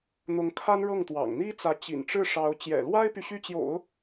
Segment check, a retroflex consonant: present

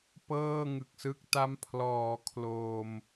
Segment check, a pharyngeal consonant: absent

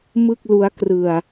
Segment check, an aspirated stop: absent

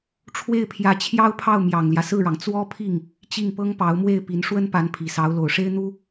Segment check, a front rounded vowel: absent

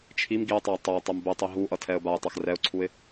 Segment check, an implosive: absent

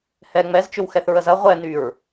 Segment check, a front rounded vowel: present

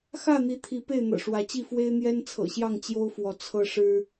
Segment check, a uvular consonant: absent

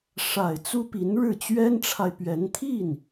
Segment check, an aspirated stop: present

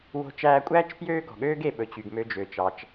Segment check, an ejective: present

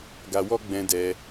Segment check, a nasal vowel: present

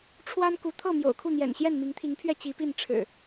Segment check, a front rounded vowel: absent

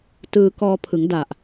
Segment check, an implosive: absent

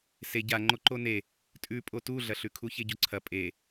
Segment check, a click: present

